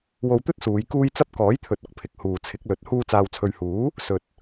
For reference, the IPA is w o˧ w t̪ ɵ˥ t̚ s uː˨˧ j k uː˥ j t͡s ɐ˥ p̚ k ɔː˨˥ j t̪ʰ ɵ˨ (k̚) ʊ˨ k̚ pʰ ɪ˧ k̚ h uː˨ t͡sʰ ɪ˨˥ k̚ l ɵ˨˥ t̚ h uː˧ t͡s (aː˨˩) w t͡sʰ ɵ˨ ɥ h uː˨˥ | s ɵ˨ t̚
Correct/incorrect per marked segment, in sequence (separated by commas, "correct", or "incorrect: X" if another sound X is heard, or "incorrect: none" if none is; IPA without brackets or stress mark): incorrect: t̚, incorrect: aː˨